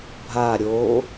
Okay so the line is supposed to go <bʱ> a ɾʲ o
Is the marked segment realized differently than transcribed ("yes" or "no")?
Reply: no